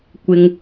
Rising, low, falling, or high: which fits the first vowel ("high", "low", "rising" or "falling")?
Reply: high